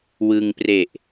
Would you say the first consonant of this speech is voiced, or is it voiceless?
voiced